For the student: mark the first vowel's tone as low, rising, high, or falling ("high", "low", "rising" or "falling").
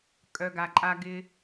low